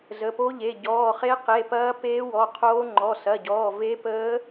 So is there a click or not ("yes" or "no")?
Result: yes